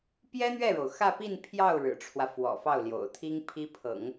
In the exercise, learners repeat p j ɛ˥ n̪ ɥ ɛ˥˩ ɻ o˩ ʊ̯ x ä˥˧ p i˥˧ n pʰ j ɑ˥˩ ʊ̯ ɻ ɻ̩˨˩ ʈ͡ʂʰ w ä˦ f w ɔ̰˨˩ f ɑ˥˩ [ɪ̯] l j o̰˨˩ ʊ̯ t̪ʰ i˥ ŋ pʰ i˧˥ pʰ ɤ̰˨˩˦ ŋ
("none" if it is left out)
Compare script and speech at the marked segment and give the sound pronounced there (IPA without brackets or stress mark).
ʊ̯